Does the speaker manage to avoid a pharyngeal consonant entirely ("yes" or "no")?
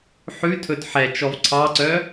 no